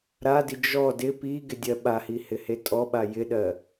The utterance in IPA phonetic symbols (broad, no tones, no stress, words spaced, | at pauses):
ɾadi d͡ʒɔ dɪ pi ɡɪdʲɜɓahi hɪhetʼɔɓa jɪɗɜ